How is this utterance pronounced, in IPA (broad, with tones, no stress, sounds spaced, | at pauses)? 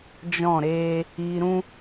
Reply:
d͡ʒ ɔ̃˦˨ ɾ eː˦ | iː˧ ɾ ũ˦